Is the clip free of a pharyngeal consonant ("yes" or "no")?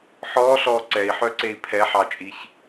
no